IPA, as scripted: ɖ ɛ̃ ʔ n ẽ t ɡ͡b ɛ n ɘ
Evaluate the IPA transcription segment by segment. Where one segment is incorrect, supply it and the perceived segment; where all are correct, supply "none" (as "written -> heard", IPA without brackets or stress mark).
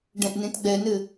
none